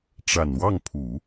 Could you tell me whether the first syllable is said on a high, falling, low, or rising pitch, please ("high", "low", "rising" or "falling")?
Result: low